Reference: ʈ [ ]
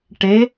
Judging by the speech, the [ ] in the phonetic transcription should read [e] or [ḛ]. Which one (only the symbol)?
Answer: e